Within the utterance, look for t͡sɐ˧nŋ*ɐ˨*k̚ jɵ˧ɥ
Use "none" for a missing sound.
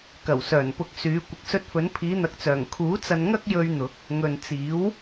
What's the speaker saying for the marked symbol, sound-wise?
ɐ˥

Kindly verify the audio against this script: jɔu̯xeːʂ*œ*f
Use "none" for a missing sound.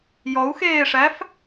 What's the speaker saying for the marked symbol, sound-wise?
æ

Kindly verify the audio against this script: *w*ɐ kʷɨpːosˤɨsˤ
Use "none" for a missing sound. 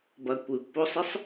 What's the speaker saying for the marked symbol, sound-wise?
b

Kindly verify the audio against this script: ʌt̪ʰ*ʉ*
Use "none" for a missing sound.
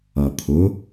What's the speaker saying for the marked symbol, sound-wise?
ʊ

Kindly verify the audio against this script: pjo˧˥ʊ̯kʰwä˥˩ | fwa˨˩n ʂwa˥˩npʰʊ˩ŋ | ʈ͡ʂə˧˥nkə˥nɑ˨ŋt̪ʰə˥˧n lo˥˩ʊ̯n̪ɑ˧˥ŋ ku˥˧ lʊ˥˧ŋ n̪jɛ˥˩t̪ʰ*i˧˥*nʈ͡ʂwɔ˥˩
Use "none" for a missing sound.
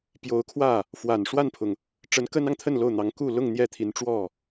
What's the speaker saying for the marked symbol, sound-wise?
i˧˥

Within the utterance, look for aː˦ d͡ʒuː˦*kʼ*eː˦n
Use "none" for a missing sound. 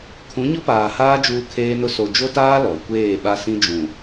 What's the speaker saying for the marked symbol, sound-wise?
kʰ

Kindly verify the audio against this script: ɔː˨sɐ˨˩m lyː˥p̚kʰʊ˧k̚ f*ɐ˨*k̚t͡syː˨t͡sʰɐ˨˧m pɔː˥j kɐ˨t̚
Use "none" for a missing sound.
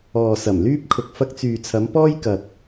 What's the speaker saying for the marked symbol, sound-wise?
ɐ˧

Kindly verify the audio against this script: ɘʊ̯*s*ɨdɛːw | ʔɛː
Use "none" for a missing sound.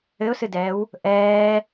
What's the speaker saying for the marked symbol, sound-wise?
s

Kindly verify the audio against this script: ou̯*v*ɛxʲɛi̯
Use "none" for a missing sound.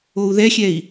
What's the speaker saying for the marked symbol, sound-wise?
ð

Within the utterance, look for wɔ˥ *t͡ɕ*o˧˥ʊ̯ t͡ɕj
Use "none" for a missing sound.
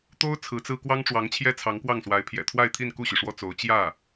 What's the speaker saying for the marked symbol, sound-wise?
t͡s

